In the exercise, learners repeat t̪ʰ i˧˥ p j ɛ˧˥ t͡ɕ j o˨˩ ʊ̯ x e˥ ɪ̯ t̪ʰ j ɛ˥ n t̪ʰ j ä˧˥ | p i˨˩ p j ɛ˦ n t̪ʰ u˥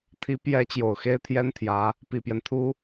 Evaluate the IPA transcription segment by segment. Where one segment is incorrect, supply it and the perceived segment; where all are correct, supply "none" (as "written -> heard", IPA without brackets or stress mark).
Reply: none